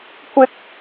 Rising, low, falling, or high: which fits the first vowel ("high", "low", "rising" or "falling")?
high